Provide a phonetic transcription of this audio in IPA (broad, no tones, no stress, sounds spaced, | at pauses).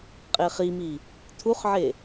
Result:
qʼ e χ i m i | tʰ u χ ʕ e